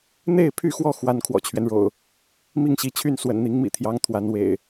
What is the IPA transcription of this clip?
n̪e˥˨ɪ̯pʰy˥˨xwɔ˥˨ xwa˦n kʰwɔ̰˨˩t͡ɕʰɥɛ˦nɻo̰˨˩ʊ̯ | mi˥˨ŋɕi˨˦t͡ɕʰy˥˨n swə̰˨˩nn̪i˨˦ŋmḭ˨˩t̪ʰjɑ˨˦ŋ t̪ʰwa˨˦nwḛ˨˩ɪ̯

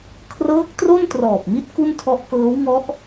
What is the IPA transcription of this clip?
kʰrɤː˦˥k̚tro˥˩ntrɔː˨˩p̚ mi˥˩t̚ ku˥˩ntʰɔ˦˥ʔkɤː˦˥w ŋɔ˦˥ʔ

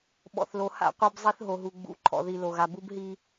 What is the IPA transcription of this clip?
ɓɔ̰˨θlo˨ ha̰˦˨qʷœ˦b zˤi˦θɦo˨ɦu˨ ɡ͡bṵ˨ ǃʰɔ̰˨ði˨lo˨ɣa˨ bu˦bɦi˦

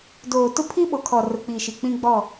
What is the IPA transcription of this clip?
doː˨tʊ˦ pʰi˦ɓo˨kʰɔ˨ rʊ˨k͡pi˨ʃi˨ k͡pĩ˦ɡ͡bɔ˦˨

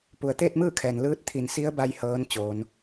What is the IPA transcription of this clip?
pu˩ə̯t̪eː˥˨t̚mɯː˥˨kʰɛː˩n lɯː˧˥t̚t̪ʰi˧˩nsi˧˥ə̯ba˧j hɤː˧˥n t͡ɕoː˩˧n

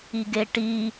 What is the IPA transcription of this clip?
iɡeʈi

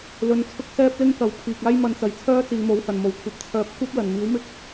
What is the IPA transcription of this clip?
lɵ˧nt͡sʰʊ˥k̚sɛː˥p̚lɪ˥ŋ kɐ˨˧wpʰiː˨k̚aː˥j mɐ˧nt͡sɐ˨jt͡sʰœː˥ t͡siː˨˧mo˨˥whɐ˨˩nmo˨˩w kʷʰɐ˨p̚t͡sʰœː˨˥p̚kʷɐ˥p̚ lɐ˨˩n miː˨˥wmɪ˥k̚

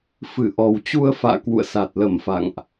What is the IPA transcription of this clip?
fɨ˧˩ʔɔ˨˩wt͡ɕu˧ə̯fa̰ː˧˨ kwṵ˧˨ə̯sa˨˩t̚lə˧˩m fa̰˧˨ŋʔ

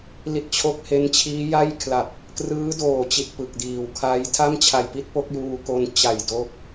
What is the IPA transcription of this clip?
li˦˥t̚t͡ɕʰo˥˩k̚he˦˥n t͡ɕʰiː˦˥ja˥˩jkʰla˨˩p̚ | krɯː˦˥doː˨˩t͡ɕi˨˩t̚ pɯ˨˩k̚diː˨˩w kʰa˦˥j tʰa˥˩mt͡ɕʰa˨˩jpi˦˥t̚ po˦˥k̚juː˧ko˧n t͡ɕa˨˩j do˦˥k̚

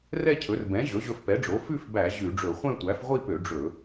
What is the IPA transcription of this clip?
rɛ˥˧cʰɵ˩˥r bɛ̃˩˥ ʑɵ˩˥ʑɵ˧fpɛ˩˥ɖ͡ʐo˩˥ fʉ˥˧fbæ˧˩˧ ʑʉ˧˩˧ɖ͡ʐɵ˧˩˧ χʷɛ̃˥˧tʷæ˩˥f ʁʷi˥˧pø˧˩˧ ɖ͡ʐɵ˧˩˧

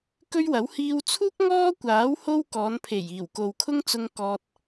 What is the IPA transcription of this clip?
kɵ˥ɥwɐ˨˥w hiː˧wt͡sʰuː˥k̚ ŋɔː˥kʷaː˨˥w ho˥wkɔː˨˧npʰe˨˩j iː˨˩wko˨wkʰʊ˥ŋt͡sʊ˧ŋ kɔː˨t̚

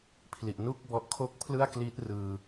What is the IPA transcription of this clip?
pʰli˨˩ʔnu˥˩k̚bɔ˦˥ʔ kʰo˥˩k̚pʰlɯ˥˩a̯kli˦˥t̚ rɯː˧

